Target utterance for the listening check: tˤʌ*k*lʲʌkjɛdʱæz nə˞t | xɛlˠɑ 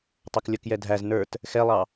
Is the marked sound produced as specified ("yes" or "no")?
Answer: yes